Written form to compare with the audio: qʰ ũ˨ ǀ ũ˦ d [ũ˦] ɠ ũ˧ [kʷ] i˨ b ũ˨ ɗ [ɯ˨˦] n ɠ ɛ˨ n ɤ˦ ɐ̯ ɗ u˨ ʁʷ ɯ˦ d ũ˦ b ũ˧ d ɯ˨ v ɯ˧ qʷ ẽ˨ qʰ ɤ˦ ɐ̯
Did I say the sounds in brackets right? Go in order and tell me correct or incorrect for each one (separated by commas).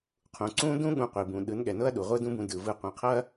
correct, incorrect, correct